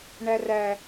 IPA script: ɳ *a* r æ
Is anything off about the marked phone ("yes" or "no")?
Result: yes